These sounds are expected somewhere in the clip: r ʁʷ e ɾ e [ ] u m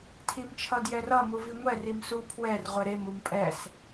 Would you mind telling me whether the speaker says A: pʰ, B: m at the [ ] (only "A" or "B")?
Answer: B